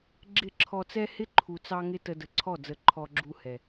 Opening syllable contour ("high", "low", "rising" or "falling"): falling